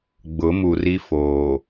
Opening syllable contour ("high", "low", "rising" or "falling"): rising